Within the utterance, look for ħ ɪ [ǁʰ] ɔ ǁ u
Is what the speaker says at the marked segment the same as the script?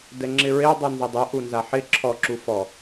yes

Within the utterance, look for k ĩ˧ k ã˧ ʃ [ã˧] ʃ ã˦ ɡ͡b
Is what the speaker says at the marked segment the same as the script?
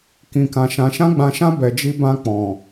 yes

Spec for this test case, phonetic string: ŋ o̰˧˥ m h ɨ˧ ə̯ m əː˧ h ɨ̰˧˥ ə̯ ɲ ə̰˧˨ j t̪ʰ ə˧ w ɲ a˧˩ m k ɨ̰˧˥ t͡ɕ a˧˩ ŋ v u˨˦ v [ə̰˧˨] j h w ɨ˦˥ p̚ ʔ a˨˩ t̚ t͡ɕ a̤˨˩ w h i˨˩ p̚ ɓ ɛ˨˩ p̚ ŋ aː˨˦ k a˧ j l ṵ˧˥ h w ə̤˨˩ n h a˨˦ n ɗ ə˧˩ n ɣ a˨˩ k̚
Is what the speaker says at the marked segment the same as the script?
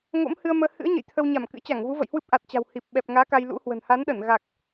yes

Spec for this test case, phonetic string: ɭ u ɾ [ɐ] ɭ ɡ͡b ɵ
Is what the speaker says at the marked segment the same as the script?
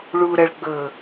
yes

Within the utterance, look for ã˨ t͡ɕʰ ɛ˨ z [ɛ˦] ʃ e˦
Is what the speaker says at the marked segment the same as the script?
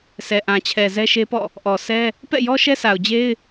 yes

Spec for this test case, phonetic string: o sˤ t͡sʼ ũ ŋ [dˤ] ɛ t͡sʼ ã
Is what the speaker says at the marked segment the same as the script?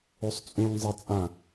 no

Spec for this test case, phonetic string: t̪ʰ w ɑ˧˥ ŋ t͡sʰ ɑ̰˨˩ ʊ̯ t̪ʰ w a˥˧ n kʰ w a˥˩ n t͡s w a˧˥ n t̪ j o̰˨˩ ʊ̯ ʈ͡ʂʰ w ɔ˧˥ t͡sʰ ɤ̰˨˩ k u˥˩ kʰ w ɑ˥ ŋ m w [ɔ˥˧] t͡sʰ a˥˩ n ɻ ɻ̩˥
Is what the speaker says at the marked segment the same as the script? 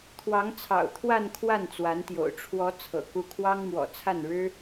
no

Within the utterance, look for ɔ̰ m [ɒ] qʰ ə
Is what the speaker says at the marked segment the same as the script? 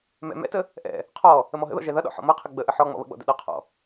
no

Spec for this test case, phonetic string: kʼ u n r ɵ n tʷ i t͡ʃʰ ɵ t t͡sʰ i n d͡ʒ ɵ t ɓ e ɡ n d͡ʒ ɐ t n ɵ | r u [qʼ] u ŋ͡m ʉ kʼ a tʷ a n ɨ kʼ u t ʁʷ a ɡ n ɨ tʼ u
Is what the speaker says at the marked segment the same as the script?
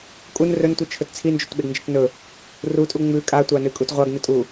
no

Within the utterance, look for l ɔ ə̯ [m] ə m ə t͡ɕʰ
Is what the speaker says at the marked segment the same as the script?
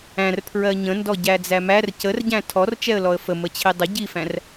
no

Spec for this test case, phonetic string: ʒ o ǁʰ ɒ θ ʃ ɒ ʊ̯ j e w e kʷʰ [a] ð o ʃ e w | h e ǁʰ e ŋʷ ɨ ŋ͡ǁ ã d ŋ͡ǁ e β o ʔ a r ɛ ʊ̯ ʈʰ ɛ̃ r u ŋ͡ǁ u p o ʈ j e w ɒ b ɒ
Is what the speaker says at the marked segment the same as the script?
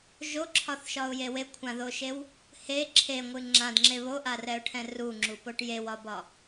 no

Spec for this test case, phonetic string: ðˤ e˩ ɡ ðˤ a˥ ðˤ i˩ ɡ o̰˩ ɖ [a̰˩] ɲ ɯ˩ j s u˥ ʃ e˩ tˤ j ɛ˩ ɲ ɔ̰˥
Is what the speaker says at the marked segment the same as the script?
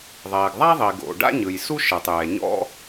no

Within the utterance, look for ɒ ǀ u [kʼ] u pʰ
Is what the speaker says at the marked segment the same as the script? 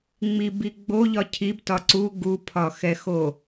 no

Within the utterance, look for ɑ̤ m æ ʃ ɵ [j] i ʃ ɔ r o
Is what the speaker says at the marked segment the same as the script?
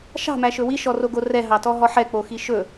no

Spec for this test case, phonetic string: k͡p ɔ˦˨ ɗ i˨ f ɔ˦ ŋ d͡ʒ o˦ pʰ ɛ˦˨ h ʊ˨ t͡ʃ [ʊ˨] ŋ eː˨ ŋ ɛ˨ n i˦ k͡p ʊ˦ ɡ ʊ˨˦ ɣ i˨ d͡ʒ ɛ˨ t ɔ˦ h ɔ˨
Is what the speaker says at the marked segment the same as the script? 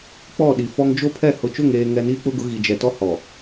no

